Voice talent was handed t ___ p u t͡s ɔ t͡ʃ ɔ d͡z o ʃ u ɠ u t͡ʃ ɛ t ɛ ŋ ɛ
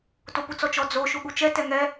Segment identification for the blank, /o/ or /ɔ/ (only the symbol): o